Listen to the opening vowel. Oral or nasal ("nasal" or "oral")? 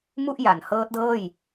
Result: oral